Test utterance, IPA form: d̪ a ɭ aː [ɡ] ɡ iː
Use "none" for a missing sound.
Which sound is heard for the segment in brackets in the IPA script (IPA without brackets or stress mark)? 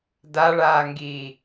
ŋ